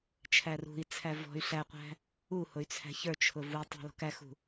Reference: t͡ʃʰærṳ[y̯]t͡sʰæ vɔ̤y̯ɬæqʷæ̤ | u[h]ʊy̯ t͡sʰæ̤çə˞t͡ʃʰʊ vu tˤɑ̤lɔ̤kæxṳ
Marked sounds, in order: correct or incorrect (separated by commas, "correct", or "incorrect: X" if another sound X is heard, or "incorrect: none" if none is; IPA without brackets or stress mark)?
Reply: incorrect: i̯, correct